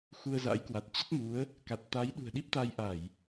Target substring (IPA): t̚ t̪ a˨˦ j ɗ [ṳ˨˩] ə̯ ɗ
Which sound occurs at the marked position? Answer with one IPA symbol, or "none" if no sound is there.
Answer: ṳ˨˩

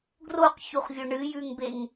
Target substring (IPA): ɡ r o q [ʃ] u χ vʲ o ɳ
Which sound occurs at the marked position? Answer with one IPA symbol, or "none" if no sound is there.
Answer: ç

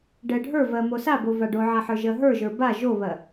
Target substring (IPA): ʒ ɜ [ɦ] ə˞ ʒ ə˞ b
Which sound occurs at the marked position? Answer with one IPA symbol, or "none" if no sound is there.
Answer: ɦ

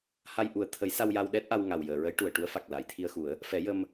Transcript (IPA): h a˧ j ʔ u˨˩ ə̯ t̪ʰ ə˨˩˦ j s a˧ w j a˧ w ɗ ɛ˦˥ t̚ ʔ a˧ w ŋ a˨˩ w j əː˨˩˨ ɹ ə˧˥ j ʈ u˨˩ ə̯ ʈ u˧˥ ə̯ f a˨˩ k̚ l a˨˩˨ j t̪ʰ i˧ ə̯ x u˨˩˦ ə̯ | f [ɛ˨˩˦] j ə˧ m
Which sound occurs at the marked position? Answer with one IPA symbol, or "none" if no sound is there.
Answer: ɛ˨˩˦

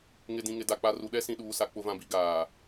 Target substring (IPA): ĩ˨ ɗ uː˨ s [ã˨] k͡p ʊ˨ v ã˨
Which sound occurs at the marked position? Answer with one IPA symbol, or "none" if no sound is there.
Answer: a˨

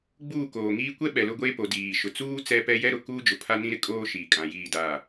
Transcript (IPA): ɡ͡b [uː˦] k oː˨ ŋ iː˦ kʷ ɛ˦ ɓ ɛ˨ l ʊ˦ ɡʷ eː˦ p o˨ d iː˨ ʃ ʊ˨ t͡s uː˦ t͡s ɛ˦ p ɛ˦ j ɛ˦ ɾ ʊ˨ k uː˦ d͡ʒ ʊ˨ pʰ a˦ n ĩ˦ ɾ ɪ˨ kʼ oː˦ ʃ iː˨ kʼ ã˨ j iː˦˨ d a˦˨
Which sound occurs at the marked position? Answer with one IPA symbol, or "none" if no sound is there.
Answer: uː˦˨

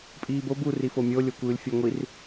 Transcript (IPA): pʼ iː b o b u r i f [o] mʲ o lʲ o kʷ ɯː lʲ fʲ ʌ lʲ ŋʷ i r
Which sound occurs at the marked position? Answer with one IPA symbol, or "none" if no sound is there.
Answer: o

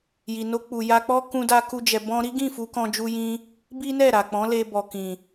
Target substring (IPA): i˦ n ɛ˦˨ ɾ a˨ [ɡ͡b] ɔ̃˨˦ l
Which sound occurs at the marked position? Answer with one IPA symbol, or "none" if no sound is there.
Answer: k͡p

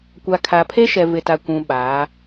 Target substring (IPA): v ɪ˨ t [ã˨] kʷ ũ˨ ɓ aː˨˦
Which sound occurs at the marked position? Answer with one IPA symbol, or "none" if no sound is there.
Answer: a˨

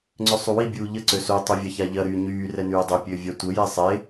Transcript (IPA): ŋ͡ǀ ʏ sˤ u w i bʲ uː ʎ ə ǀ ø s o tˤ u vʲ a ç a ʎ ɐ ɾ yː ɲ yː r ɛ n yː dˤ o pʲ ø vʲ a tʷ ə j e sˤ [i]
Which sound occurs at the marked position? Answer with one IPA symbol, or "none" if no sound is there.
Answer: e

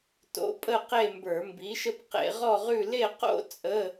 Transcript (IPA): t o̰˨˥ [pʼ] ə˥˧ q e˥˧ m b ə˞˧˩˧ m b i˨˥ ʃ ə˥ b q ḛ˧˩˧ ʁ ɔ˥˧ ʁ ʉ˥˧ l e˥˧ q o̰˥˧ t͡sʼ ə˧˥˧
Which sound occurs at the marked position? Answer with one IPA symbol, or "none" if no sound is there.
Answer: pʼ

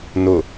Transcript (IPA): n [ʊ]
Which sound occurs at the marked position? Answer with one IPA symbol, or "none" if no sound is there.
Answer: ʊ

